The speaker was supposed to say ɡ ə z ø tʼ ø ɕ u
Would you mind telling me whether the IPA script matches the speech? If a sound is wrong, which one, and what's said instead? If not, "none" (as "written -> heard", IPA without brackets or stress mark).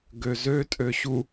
ə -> ø